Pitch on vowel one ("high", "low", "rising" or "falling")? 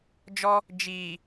high